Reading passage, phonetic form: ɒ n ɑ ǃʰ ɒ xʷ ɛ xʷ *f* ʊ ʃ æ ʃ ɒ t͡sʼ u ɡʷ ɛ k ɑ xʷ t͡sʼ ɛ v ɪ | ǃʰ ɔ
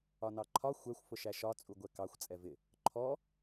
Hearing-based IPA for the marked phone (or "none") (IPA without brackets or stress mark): f